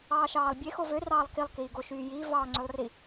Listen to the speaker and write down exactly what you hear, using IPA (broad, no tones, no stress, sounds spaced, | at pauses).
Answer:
ɑː ʃ ɑː lˠ bʲ e x o v ø r ɑː lˠ k i lˠ k iː ɡ o ʃ yː j iː v ɑː ŋ͡ǀ ø lˠ r i